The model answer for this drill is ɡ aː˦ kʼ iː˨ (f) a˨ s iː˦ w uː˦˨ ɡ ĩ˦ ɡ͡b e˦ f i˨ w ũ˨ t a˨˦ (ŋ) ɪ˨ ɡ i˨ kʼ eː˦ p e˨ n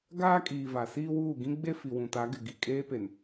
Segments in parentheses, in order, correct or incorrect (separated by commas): incorrect, incorrect